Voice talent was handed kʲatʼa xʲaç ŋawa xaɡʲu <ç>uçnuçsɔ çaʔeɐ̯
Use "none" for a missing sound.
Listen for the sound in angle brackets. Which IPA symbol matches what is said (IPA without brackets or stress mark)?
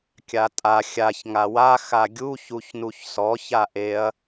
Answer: ç